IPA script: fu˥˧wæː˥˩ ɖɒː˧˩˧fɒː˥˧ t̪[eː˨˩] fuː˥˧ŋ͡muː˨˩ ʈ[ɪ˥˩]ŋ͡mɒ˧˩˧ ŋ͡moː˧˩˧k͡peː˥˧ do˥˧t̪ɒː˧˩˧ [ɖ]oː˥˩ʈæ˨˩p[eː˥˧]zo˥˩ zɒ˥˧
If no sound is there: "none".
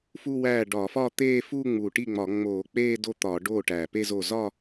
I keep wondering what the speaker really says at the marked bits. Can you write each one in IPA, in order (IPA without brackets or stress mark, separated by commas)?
eː˥˧, i˥˩, ɖ, e˥˧